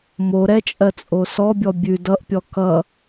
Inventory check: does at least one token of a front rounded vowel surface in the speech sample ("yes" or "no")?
no